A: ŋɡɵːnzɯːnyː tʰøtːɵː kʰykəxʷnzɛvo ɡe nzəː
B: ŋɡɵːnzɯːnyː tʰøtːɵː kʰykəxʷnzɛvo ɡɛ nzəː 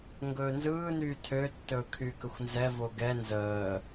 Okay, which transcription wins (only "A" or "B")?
B